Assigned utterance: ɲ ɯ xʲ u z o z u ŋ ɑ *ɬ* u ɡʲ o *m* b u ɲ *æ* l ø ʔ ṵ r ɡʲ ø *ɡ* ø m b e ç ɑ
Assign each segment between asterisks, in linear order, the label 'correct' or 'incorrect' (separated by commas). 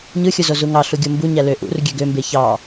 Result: correct, correct, correct, correct